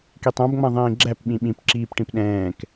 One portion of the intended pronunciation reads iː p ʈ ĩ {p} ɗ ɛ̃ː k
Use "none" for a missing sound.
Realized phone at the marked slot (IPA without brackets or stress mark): p